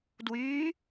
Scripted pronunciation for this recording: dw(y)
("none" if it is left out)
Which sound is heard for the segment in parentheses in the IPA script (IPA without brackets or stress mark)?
y